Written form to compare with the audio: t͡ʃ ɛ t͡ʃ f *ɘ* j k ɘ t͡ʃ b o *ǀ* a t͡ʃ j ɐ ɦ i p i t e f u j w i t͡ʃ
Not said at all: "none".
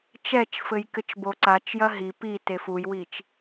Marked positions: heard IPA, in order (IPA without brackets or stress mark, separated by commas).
ɘ, ǀ